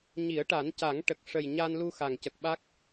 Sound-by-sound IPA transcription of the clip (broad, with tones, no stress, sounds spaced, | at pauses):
ɲ i˨˩˦ ə̯ ʈ a˨˩˦ n c a˨˩˦ ŋ ʈ ə˨˩ k̚ ʂ ə˨˩ j ɲ a˧ n l u˧ x a˨˩ ŋ c ə˨˩ k̚ ɓ a˦˥ k̚